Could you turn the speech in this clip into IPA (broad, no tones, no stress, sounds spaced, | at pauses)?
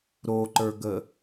ɾ o ǃ ə˞ ɡ ə